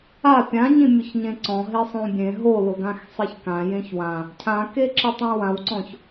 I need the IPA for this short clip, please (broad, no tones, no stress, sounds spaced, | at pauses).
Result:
a pʲ ã ɲ ĩ mʲ ʊ ç ɲ ẽ ǀ ɔ̃ ɦ e sˤ õ bʲ ẽ ɦ o l ʊ ɡ ã x sˤ e ç k ã j ẽ ç w ã | cʰ ã k e ǁ ɪ tˤ ĩ w ã w ǀ ɔ̃ ç